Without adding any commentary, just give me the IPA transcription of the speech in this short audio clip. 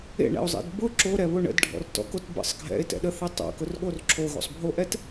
ḛ ɳ ɛ̰ o̯ zˤ ḛ d b ʊ ǁ o ɾ ɛ β ʊ ɳ ə̰ d ɖʱ ɔ̰ r t ɔ̰ k o t b ə̰ sˤ ɡʱ ɛ̰ e̯ t ɛ̰ ɗ ə θ e tˤ o̰ k ʊ r ɠ o r ǁʰ o ɣ o̰ sˤ bʱ o ʔ ɛ t

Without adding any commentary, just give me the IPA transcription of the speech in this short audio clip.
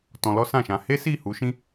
t ɔ̃˧ l ɔ˦ s ã˦˨ ʃ ã˧ h e˦ s i˦˨ h u˨˦ ʃ ĩ˦

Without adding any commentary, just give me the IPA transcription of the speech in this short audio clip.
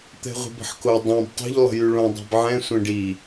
t̪ ɛ̤ ʁʷ e̤ b ə̤ ħ k o dˤ ã b tˤ o̤ ʎ lˠ ə̤ j y ɭ õ dˤ i̤ b ʕ ɛ̃ sʷ ɛ̃ ɖ i

